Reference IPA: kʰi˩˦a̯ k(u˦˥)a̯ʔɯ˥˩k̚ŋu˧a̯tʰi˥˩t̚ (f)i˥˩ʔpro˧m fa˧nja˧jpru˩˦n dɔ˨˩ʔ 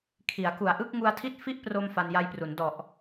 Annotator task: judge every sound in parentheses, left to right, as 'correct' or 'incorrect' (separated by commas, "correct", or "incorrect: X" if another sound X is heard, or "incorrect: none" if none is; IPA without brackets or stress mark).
incorrect: u˨˩, correct